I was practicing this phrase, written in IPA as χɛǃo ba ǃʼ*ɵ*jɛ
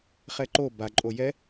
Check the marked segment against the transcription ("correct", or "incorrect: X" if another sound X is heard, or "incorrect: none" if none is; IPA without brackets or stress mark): incorrect: o